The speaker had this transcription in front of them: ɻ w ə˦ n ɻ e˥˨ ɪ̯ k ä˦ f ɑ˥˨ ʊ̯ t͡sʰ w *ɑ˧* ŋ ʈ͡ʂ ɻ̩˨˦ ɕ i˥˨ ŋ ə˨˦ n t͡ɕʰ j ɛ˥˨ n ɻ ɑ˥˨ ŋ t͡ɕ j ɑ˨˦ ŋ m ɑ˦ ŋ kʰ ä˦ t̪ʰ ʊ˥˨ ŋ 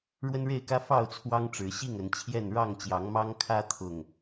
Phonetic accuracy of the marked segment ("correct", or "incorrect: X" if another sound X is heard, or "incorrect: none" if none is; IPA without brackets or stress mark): incorrect: ɑ˦